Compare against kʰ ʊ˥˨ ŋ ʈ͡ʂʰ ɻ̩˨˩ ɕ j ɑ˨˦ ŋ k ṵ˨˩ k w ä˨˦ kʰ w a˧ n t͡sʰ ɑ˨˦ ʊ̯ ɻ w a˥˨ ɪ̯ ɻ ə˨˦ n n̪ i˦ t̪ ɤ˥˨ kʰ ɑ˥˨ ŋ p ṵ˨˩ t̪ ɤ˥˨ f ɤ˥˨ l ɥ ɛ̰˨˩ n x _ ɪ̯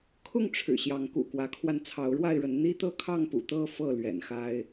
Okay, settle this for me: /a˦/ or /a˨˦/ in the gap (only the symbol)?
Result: a˦